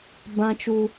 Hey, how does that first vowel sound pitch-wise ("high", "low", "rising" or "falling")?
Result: high